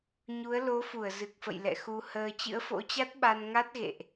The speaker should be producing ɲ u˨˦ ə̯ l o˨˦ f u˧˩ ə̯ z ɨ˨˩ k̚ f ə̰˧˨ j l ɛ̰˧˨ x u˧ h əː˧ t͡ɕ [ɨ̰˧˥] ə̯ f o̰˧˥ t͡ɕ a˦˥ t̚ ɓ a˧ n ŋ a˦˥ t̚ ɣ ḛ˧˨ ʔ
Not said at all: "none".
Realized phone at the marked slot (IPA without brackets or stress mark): ɨ̰˧˥